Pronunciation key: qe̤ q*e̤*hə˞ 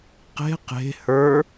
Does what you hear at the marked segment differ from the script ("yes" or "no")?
no